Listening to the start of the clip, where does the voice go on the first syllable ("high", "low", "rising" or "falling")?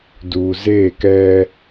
low